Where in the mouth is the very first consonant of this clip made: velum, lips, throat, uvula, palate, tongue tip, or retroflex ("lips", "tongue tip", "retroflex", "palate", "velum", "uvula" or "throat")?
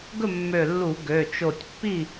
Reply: velum